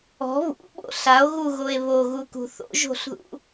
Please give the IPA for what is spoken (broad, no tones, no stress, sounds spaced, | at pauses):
ɔ̤ β ṵ ɓ o̰ ɬ a o̯ ɣ u ɣ o e̯ β o ɣ u k ṳ θ o̰ ʒ o̤ ɬ ð ṵ